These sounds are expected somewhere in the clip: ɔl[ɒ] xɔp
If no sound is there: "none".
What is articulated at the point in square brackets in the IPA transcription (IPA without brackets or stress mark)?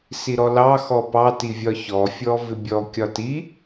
ɑ